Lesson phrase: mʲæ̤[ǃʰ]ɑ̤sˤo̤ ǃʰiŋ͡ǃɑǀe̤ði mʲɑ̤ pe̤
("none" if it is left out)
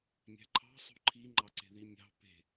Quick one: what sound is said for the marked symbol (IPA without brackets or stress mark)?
ǃʰ